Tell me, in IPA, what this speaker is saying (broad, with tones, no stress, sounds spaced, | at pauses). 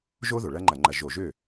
ʒ o˥ ð o˩ ɭ ɐ˥ ŋ͡ǃ ɐ˧˩˧ ŋ͡ǃ ɐ˧˩˧ ʒ o˧˩˧ ʒ ø˥˩